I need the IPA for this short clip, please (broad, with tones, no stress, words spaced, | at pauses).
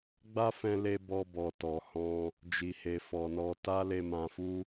ɡ͡ba˦fɛ̃˧ le˧ bɔ˧ bɔ˨tɔ˨ hɔ̃˧ | d͡ʒi˨he˨ fɔ˨nɔ˧ ta˦le˧mã˧fu˦